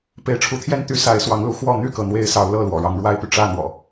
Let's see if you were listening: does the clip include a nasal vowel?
no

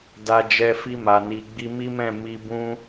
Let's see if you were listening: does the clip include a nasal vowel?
yes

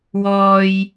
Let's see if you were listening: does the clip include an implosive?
no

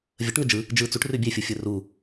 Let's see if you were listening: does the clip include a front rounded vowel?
no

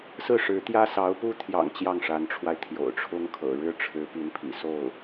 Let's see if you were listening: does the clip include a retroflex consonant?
yes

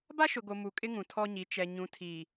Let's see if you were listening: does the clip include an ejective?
yes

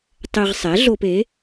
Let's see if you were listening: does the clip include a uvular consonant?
yes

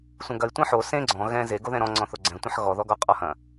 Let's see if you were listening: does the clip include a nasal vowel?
yes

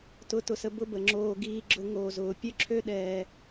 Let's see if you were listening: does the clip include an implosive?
yes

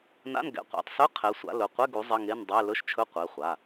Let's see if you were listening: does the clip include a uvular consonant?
yes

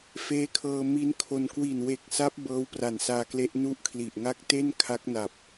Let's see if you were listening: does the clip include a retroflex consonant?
no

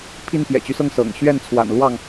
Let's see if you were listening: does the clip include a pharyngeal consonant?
no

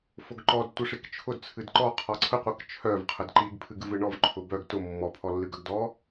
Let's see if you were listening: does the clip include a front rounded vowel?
yes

